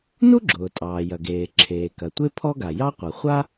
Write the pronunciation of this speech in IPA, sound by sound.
n u˥ ɡ͡ǁ ʊː˩ tʼ ɑː˩ j ɐ˩ ɡ eː˩ ǁʰ eː˩ k ɐ˩ tʷ e˥ pʰ ɔ˥ ɡ a˩ j ɑ˥ qʷ ɐ˩ χʷ a˥

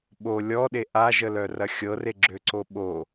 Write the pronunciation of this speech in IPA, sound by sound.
ɓ o lʲ ɔ ɗ e ʔ a ʒ ə l œ r ɐ xʲ ɤ r e ɡ͡ǁ ø ǀ o ɓ o

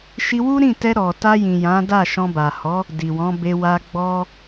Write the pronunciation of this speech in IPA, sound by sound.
ʃ i˧ w u˦ ɾ ĩ˦˨ t ɛ˧ ɾ ɔ˨ t a˧ j ĩ˨ j ã˨˦ d a˦˨ ʃ ɔ̃˧ b a˨ h ɔ˨˦ | d i˨ w ɔ̃˨˦ b e˧ w a˧ ɡ͡b ɔ˦

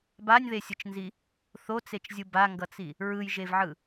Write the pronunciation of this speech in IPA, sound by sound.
b a nʲ ð e sʲ ɯ t͡ʃ n z i | θ o t͡s e t͡ʃ zʲ ɯ b a ŋ ɡ ʌ t͡s i | ɹ ɯ j ʒ e v ʕ ɯ

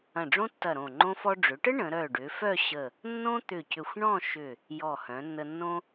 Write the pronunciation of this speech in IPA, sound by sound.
ɐ̃˧˩ ɖ͡ʐ õ˥ tː ɐ˧˩ ɾ õ˧˩ ŋ͡ǃ õ˧ f ɔ˧ ɖ͡ʐ ʏ˩˧ ʈ ə˥ ɳ ə̃˩˧ ɾ œ˧˩ ɖ ʏ˩˧ f œ˥˧ ɕ ə˧˩ | nː õ˥ t̪ ʏ˧˩ c ʏ˧˩ xʷ ɳ ɔ̃˥˧ ʃ ʏ˧˩ | j ɔ˧˩ h œ̃˩˧ nː ə˧ nː õ˥

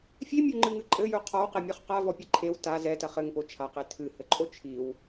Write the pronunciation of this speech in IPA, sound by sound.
fʲ e mʲ o ŋ͡ǃ ɨ ŋ ɨ ǃʼ ɘ j u qʰ ɔ w q ɛ mʲ ɔ χ q a v ɔ pʲ ɘ ǃʰ e w t a z ɛ t ɐ χ ɘ ŋ p o t͡ʃʰ a q e tʰ ɨ h ɘ ǃʼ o t͡ʃʰ i w

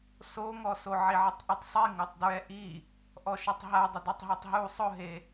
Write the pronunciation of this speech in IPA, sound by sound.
s o ŋ ɔ s o ʕ i ʕ ɪ tˤ ʔ ɛ tˤ sˤ i ŋ o tˤ d ɹ ɛ ʔ i | ʔ ɔ ʃ ʊ tˤ ɦ a dˤ ɪ d u tˤ ɦ o tˤ ɦ u sˤ ʊ ɦ e

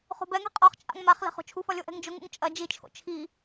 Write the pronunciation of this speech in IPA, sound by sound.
χ o̤ b ɛ ŋ ɛ̤ qʼ ɔ χ t͡ʃʼ a̰ ŋ m a χ l ɛ̤ χ o̤ t͡ʃʰ u f ɒ lʲ o ʔ ɛ̤ ŋ d͡ʒ ʊ ŋ ṵ ŋ t͡ʃʼ ɐ d͡ʒ i t͡ʃʰ o̰ t͡ʃʰ i

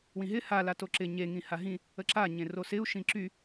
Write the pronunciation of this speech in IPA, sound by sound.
w ĩ ɦ ɪ h a l a t o ǁ ɪ ɲ e ŋ ĩ h a ɦ ĩ | ə ǁ a ɲ ẽ r o s ɪ u̯ ʃ ĩ ǁ y

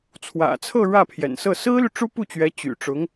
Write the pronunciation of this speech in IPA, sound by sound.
t͡sʰ w ä̰˨˩ t͡sʰ ɤ˥˧ ɻ ä˥˩ pʰ j ɛ̰˨˩ n s ɤ˥˩ s ɹ̩˥ l y˨ ʈ͡ʂ u˥ p u˥˩ t͡ɕ ɥ ɛ˧˥ t͡ɕ y̰˨˩ ʈ͡ʂ ʊ˧˥ ŋ

